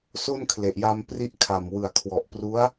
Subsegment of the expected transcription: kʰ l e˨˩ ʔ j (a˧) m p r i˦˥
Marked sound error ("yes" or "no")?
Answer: no